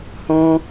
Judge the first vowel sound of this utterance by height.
mid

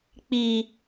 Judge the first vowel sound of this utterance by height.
high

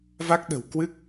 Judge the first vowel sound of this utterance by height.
low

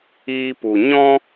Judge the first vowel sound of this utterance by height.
high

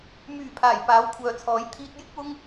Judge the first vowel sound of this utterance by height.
high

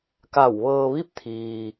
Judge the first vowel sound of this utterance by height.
low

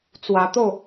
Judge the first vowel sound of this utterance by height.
low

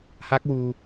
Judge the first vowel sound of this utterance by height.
low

